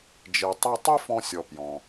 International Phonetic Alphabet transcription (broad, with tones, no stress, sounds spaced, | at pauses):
d͡ʒ e˩ tˤ ɛ˧ tˤ i˥ f ɔ̃˧ sʲ ɔ˩ p j ɔ̃˩